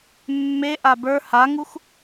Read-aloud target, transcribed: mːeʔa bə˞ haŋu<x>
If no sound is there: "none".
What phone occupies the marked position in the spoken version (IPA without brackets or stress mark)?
x